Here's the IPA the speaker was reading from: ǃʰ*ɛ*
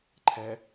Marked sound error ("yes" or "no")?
no